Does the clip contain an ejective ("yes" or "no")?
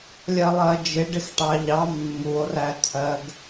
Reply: no